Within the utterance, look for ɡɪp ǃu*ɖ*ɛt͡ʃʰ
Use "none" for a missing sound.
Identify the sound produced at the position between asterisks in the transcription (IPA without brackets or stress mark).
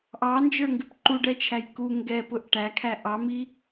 ɖ